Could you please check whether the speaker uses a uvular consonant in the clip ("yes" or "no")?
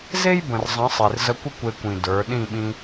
no